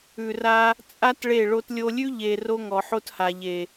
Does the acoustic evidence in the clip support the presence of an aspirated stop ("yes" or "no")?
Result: no